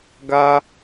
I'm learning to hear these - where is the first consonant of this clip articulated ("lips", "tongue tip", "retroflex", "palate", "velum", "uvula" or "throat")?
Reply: velum